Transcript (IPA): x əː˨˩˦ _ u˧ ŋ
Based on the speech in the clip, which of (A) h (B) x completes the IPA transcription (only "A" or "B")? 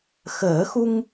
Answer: B